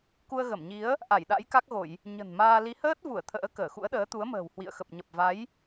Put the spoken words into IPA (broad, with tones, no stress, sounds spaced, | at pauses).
k u˧ ə̯ ɣ ə˧˩ m ɲ i˨˦ ə̯ | ʔ a˧˩ j ɗ a̰˧˥ j k a˦˥ k̚ ɣ o˧˩˨ j | ɲ ə̤˨˩ n m aː˧ l i˨˦ h əː˦˥ t̚ v u˧˩ ə̯ t̪ʰ ə̰ː˧˥ k əː˧˩ x ṵ˧˥ ə̯ ɗ əː˨˦ t̪ u˨˦ ə̯ m ə̤ː˨˩ w h w ḭ˧˨ ə̯ x ə˨˩ p̚ ɲ ə˨˩ p̚ v a˨˦ j